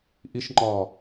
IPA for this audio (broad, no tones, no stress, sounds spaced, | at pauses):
ʔ i ʃ ŋ͡ǃ ɒː